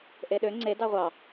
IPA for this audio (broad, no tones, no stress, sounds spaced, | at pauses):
ʔ e ɗ ø ŋ͡ǀ e d ɑ ʁʷ ɑ